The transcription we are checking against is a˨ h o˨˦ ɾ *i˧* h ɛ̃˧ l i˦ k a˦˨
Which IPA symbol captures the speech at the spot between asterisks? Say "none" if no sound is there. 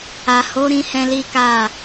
ĩ˧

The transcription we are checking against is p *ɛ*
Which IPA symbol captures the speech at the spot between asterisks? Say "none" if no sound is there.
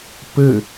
ɘ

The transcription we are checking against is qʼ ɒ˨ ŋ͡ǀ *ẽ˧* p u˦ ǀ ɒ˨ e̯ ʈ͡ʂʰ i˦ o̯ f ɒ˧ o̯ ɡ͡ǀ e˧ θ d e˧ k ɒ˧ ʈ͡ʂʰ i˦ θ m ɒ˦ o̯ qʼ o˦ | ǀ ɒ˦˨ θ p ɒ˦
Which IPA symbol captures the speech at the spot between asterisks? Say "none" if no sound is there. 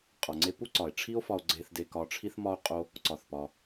e˧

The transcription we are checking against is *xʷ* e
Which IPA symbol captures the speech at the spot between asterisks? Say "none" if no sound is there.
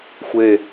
xʷ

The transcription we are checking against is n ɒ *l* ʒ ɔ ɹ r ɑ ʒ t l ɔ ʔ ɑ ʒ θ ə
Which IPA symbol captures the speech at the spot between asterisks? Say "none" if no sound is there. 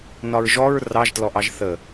ɹ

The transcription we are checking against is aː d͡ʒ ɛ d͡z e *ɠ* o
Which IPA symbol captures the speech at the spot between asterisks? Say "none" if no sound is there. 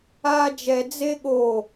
ɠ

